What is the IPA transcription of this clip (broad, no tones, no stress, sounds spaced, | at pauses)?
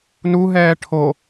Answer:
n u ɦ ɛː ʈʰ o